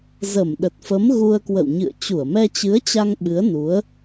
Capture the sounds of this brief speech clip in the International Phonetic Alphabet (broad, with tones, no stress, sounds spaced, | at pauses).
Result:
z ə˧˩ m ɗ ə˨˩ t̚ f ə˨˦ m ɣ u˧ ə̯ k w ə̰˧˨ w ɲ ɨ̰˧˨ ə̯ t͡ɕ u˧˩ ə̯ m ɛ˧ t͡ɕ ɨ˨˦ ə̯ t͡ɕ a˧ ŋ ɓ ɨ˨˦ ə̯ n u˨˦ ə̯